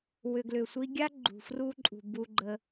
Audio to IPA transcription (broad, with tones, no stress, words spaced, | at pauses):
wʏ˨ɡlʏ˨sʷi˧ ɡʲa˦ɡ͡ǃṳ˨fru˧ǃʼṳ˨ bu˧ɡ͡ǃə˧